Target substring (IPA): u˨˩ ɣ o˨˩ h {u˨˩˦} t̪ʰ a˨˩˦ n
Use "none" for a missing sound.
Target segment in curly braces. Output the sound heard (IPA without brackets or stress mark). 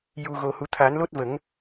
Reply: u˨˩˦